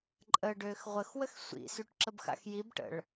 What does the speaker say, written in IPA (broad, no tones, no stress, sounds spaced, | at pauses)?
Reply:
ǃʼ ə ɖ øː x ʁʷ ə x w ə x sʷ ḭ s y ʈ ǁ ə b x a̰ x j i b ʈ ə̰ ɭ